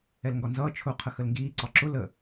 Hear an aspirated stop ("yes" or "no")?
yes